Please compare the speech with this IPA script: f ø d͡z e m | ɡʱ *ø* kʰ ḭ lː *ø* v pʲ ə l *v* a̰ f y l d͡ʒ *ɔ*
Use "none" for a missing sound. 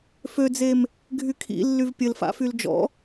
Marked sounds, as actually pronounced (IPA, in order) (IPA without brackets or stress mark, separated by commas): y, y, f, ɔ̰